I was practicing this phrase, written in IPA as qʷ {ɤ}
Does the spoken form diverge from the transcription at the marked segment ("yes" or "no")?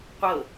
no